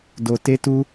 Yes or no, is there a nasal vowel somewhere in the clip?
no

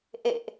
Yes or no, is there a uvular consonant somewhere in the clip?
no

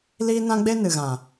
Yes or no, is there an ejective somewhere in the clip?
no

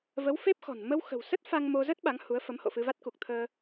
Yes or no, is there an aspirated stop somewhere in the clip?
yes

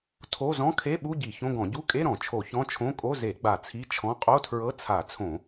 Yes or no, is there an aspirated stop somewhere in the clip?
yes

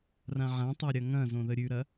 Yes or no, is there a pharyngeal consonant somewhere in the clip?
yes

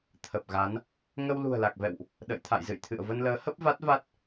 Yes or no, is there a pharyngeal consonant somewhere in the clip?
no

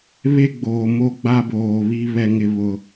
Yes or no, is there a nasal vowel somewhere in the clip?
no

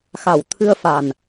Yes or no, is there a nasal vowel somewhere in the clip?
no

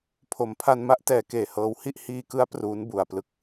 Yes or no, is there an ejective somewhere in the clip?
no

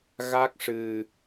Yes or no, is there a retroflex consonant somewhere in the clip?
yes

